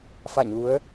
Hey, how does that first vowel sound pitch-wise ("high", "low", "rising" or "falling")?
falling